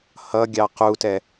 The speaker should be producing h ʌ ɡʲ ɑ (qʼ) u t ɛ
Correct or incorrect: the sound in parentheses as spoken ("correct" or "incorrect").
incorrect